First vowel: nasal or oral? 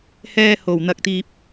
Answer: oral